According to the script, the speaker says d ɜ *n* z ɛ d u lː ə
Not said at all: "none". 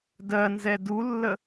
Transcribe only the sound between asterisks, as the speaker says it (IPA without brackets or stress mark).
n